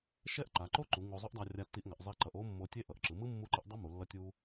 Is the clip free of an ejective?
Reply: yes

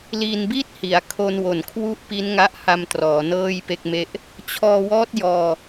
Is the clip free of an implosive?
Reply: yes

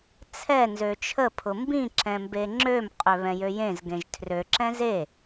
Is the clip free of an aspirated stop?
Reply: no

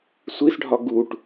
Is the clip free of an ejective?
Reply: yes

